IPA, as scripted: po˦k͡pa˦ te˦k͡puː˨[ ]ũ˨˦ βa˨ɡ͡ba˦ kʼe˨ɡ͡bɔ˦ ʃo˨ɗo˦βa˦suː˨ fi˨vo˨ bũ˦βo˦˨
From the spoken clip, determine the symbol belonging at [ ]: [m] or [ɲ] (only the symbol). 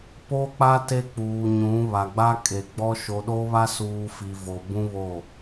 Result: ɲ